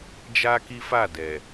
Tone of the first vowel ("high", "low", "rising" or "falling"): high